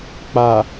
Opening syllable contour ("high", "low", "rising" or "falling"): low